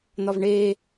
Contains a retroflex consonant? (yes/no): yes